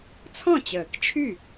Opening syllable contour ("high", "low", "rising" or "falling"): falling